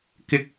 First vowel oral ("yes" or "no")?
yes